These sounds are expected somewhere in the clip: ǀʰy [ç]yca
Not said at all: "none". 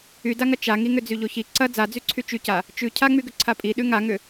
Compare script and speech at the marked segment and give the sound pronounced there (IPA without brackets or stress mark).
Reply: t͡ʃ